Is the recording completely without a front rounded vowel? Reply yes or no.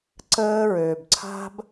no